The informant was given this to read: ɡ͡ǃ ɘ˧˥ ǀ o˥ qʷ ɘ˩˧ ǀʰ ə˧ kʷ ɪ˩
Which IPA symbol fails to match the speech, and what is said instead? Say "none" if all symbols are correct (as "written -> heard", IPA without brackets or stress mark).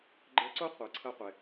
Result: kʷ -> qʷ